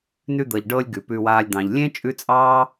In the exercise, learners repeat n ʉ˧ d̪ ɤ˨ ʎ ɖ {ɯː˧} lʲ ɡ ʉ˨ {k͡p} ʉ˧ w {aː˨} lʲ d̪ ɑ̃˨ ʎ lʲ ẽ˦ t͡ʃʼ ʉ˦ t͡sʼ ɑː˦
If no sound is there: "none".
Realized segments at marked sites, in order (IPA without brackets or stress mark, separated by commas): ɤː˧, p, aː˧